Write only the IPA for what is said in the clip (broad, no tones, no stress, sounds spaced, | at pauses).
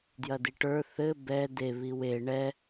d j ɐ d i ʈ ə˞ θ ɘ b ɛ d e β i w e ɳ ɛ